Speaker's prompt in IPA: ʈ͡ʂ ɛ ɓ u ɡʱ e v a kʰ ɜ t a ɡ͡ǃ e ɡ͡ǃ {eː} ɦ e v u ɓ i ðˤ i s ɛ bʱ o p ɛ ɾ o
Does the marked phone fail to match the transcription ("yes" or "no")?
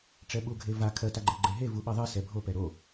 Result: yes